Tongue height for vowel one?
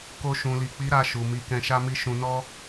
mid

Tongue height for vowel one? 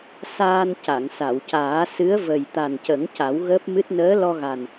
low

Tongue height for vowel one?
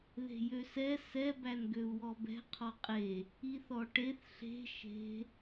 mid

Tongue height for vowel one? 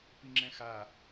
high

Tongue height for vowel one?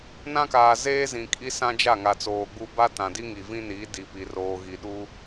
low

